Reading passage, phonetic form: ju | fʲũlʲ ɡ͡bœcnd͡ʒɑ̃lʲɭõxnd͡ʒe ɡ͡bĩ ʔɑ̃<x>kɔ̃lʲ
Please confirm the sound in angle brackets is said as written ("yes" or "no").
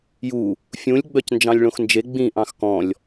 yes